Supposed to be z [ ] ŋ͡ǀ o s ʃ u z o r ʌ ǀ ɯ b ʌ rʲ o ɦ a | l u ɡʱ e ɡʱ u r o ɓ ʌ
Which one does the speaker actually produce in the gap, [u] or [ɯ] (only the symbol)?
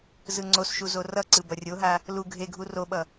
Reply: ɯ